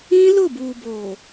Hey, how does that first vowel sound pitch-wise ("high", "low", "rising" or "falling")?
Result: high